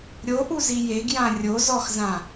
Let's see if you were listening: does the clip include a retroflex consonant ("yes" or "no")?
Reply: no